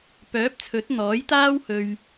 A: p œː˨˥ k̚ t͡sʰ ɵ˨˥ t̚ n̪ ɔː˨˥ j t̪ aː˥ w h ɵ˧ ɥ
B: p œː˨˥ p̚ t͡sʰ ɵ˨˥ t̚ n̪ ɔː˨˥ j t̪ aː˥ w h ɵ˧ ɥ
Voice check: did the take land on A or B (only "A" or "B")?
B